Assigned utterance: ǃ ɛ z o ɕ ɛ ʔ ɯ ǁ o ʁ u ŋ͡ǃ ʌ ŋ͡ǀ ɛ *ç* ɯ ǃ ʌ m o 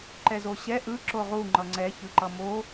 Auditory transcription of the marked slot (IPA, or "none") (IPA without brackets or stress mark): ç